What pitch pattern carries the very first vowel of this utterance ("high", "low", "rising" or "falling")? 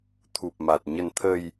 low